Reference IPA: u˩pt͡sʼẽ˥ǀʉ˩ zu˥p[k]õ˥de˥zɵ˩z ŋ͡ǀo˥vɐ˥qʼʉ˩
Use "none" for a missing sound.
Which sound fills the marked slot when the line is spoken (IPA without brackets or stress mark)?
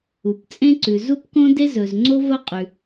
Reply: k